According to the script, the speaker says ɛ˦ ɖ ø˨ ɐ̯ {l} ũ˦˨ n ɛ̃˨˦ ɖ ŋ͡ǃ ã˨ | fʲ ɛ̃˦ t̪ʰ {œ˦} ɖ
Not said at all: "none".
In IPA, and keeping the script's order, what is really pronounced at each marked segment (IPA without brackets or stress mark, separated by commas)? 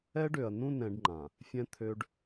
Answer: n, ø˦